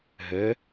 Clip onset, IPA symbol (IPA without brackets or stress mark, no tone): ɦ